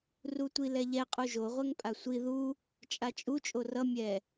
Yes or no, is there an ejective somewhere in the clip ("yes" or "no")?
yes